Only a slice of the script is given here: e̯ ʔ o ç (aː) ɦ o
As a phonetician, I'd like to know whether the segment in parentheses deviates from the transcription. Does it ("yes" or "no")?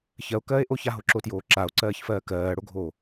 yes